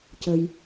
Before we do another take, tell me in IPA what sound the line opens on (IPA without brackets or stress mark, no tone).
c